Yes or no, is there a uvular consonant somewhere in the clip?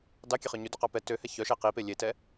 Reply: yes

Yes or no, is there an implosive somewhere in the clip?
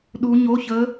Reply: yes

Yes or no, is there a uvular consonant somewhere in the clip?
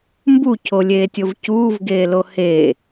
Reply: no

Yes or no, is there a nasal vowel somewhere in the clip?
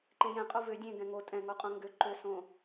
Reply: yes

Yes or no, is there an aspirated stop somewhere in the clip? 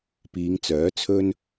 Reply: yes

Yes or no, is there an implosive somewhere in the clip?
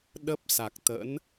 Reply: yes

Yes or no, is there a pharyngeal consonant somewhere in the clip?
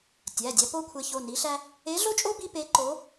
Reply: no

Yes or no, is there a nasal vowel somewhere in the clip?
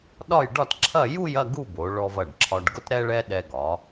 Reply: no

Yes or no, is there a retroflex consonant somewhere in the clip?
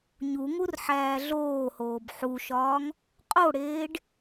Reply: yes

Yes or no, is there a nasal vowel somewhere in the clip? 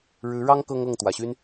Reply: no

